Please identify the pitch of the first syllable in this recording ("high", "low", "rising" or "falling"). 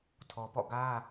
low